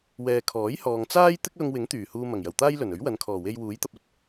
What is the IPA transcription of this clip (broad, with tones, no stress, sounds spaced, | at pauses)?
w ɛː˨ kʰ ɔː˨˥ j h ɔː˧ ŋ t͡s aː˥ j t̪ ɪ˥ k̚ l ʊ˧ ŋ w ɪ˨˥ ŋ t̪ yː˨˩ h uː˧ m ɐ˨˩ ŋ j ɐ˨˩ w t̪ aː˥ j l ɵ˨˩ n ɵ˨˥ ɥ w ɐ˨˧ n kʰ ɔː˨˩ w e˧ j w uː˨˥ j t̪ ɐ˧ p̚ ɐ˥ t̚